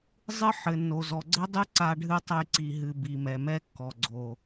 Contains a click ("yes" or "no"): yes